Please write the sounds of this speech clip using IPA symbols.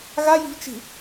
ɣaji̤v t͡ʃi̤

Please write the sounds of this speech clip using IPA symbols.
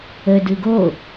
ə dɯɡo

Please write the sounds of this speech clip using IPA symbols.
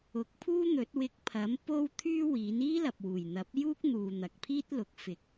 ʊ˨˥k̚pʰuː˥n̪ɵ˨˥t̚ wɪ˧k̚ pʰɐ˨˥m po˥w t̪ʰyː˥ wiː˨˥n iː˥lɐ˨p̚wuː˨˩jn̪ɐ˨˥p̚ juː˥k̚n̪uː˨ n̪ɐ˨k̚pʰiː˥t̚lʊ˨˥k̚ fɪ˨k̚

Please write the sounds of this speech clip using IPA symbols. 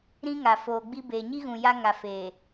ɾĩ˦ŋa˨foː˨ɡ͡bi˦ beː˨ɲi˦ ɣũ˨ja˦ŋa˨feː˨

